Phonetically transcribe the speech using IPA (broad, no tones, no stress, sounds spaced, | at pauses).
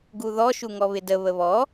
ɡ u ð ɔ ʃ u ŋ ɔ β ɪ d ə β ə β ɔ